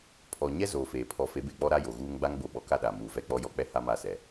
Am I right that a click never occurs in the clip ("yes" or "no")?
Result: yes